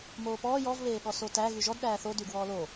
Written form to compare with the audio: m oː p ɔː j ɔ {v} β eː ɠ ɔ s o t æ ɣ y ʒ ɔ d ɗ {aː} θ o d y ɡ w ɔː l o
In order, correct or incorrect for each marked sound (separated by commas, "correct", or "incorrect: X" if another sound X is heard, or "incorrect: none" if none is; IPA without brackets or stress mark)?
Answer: correct, incorrect: æː